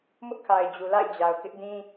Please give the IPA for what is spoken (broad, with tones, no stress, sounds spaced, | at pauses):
m ʊ˦ ʔ kʰ a˨ ɪ̯ d͡ʑ u˨ l a̰˦˨ ɪ̯ d͡ʑ a˨ ʊ̯ k ɪ˦ ʔ d ĩ˦